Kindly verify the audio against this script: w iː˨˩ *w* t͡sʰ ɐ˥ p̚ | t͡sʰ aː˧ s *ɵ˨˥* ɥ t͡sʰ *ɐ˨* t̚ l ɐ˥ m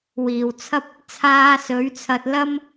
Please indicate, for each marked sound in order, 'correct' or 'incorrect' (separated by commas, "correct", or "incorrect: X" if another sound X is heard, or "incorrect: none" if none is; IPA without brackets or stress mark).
correct, correct, incorrect: ɐ˧